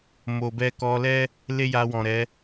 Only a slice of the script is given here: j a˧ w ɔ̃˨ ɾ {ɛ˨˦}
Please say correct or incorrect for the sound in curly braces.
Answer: correct